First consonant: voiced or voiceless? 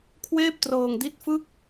voiceless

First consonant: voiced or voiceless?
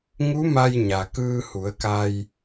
voiced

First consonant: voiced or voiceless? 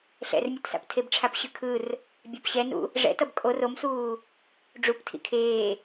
voiceless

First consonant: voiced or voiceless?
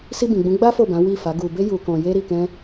voiceless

